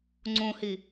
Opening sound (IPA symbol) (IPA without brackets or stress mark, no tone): ŋ͡ǀ